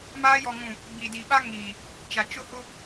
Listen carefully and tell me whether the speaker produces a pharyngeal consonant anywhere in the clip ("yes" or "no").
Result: no